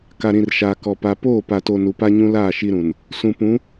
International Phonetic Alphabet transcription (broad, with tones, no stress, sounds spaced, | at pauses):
k a˨ ɾ ĩ˨ r ʃ aː˨ k ɔ˨ p a˨ p oː˦˨ p a˨ t o˨ n u˨ p a˦ ɲ ũ˦ l aː˦˨ ʃ i˦ ɾ ũ˨ n | s ũ˨ p ũ˨˦